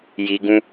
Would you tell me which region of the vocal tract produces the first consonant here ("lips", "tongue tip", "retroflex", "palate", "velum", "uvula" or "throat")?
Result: palate